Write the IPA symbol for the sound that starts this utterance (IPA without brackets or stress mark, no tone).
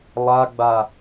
lˠ